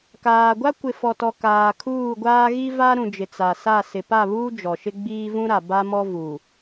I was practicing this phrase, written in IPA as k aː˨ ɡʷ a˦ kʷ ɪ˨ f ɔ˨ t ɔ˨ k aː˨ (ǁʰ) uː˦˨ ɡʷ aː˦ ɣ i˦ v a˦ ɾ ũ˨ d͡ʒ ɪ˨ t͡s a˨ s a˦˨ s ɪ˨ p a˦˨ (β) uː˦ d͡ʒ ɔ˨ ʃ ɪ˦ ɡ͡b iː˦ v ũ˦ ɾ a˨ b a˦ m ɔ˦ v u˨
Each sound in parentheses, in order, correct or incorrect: incorrect: kʰ, correct

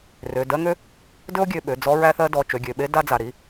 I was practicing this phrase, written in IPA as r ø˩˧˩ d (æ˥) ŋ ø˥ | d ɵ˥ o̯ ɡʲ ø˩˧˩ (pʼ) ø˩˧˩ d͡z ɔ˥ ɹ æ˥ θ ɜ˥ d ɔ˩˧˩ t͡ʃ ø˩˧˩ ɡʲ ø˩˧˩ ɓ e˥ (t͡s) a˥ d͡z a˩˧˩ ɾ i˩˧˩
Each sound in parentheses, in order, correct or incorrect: incorrect: ɜ˥, incorrect: ɓ, incorrect: d

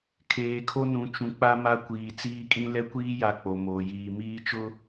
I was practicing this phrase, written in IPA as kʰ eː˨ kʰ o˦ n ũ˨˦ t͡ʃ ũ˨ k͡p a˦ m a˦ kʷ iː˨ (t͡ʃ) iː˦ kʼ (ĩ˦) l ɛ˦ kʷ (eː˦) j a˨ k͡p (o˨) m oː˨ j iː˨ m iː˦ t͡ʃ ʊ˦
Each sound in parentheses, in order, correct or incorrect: incorrect: t͡s, correct, incorrect: iː˦, correct

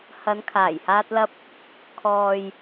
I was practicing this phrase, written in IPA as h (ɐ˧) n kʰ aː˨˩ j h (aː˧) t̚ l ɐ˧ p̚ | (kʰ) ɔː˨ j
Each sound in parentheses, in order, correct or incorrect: incorrect: ɐ˨˧, correct, correct

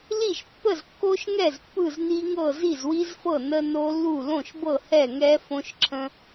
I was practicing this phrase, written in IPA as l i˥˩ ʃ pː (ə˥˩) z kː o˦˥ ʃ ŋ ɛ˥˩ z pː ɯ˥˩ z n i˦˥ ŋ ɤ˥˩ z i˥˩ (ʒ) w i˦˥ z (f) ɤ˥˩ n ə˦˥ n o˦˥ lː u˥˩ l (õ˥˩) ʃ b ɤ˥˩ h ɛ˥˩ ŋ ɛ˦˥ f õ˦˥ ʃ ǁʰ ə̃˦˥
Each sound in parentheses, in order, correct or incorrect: correct, incorrect: z, correct, correct

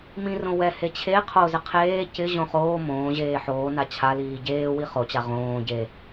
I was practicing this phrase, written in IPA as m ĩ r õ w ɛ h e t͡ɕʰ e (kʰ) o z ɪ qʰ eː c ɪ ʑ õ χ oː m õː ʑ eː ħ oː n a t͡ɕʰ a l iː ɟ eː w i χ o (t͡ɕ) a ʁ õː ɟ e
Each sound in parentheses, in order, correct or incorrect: incorrect: qʰ, correct

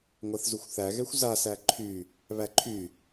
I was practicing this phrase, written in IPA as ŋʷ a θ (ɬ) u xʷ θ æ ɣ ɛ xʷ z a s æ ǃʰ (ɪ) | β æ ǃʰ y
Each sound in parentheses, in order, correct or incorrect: incorrect: z, incorrect: y

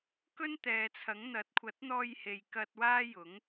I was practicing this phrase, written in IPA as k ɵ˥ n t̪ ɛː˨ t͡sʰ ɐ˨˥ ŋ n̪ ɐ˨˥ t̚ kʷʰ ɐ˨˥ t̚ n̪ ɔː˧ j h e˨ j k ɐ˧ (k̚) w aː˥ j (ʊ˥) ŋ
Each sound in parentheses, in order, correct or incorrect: incorrect: t̚, incorrect: ʊ˨˥

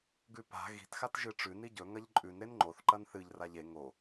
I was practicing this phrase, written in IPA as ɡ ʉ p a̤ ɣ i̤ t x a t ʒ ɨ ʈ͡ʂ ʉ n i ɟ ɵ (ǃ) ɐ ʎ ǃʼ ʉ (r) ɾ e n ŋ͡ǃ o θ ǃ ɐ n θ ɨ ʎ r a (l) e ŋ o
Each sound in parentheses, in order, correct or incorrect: incorrect: ŋ, incorrect: n, incorrect: ʎ

